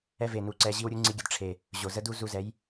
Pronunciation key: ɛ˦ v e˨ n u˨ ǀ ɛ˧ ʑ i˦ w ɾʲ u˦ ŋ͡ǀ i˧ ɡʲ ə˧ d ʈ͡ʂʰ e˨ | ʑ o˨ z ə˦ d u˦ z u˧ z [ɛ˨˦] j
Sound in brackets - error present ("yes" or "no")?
no